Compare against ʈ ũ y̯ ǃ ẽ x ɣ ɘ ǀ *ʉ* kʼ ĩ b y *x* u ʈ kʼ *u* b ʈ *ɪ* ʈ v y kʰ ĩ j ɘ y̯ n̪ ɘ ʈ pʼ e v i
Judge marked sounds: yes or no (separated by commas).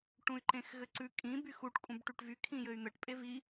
yes, yes, no, no